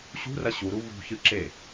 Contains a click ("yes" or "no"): yes